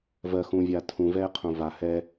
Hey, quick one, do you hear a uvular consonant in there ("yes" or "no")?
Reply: yes